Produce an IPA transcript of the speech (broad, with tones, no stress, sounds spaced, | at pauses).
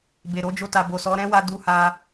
b e˨ ɾ o˨˦ d͡ʒ o˧ t a˨ b o˨ s ɔ˨˦ ɾ ɛ̃˦ w a˧ d u˧ h a˧